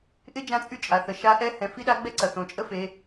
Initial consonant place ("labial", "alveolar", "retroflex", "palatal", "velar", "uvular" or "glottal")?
glottal